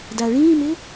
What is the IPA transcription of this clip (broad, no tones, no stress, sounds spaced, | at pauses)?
d a ɭ ĩː m ɪ